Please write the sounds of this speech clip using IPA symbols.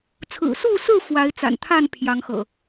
t͡sʰɹ̩˨˩su˥˨sɹ̩˥˨ fwa˨˦ɪ̯t͡sa̰˨˩nt̪ʰa˥˨n pʰjɑ˨˦ŋxɤ̰˨˩

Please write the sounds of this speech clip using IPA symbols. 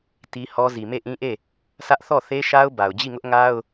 ti˦hɔ˦ zi˨me˦˨ʔĩ˦ʔe˦˨ | sä˦ʔ θɔ˦˨θe˦ʃa˦ʊ̯ ba˨ʊ̯d͡ʑi˦˨ŋʊ˦ʔŋa˦ʊ̯

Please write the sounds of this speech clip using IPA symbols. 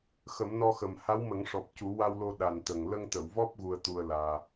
xə˨˩˦mnɔ˧xə˨˩m ha˧˥wmə˨˩˦ŋʂɔ˨˩p̚ cu˨˩˦wa˧wlo˧ ɗa˨˩nt̪ə˨˩ŋ lə˧ŋt̪ə˨˩˨wvɔ˦˥p̚ ɣu˧ə̯t̪u˧ə̯laː˧

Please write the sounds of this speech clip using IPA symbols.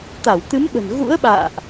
t̪a˧˩wt̪ɨ˨˦mɓə̤˨˩n ɣṵ˧˥ə̯ɓa̰ː˧˨ʔ

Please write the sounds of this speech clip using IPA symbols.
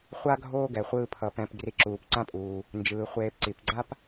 χʷa˥ɡʱoː˦ɡɛ˩ χʷɯː˨pʰʌ˩ pɛ̃˨p ɡri˨ǁuː˩pǀã˦pʼuː˩ | nd͡ʒɯː˩ χʷeː˨pǀi˩pɡ͡ǀa˥p

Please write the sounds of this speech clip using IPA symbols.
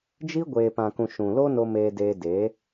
d͡ʒi˦ ɡʷeː˨pã˨kũ˨ ʃũ˨lo˦no˧ meː˧deː˧ de˨˦

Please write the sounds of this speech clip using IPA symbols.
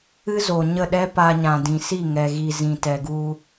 ɨ˦zo˨ɲə˦˨ɗɛ˦ pa˧ɲã˨dĩ˨ si˦˨ŋɛ˨ɣi˨ zĩ˨tɛ˨ɡu˧

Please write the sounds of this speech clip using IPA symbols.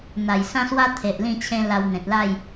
n̪a˨˩jsã˦swa˦ t̪ʰe˨ʔ lĩ˥˧t͡ɕʰẽ˦la˧w n̪ẽ˨t̚la˥˧j

